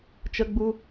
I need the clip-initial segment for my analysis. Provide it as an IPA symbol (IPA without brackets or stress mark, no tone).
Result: t͡ʃ